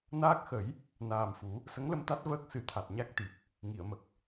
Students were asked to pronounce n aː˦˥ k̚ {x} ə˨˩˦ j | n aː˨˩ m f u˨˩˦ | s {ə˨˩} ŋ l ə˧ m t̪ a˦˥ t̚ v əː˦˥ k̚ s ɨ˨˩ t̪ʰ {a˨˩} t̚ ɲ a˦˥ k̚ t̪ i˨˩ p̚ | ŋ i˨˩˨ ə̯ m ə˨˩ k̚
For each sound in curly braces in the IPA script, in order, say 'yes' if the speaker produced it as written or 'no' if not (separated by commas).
yes, no, yes